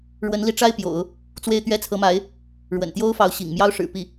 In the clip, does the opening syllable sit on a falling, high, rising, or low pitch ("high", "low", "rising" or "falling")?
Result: rising